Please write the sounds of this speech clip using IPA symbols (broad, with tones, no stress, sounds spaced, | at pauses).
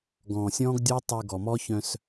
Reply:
ɡ ɔ̃ː˨ sʲ ɔ̃ː˦ ɡ dʲ o˦ tˤ y˨ ɡ ɔ˨ m ɔ˦ ç œ̃˦ s